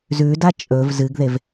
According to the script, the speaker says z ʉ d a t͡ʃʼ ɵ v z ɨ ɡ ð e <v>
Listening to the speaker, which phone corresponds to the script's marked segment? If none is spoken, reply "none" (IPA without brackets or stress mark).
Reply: v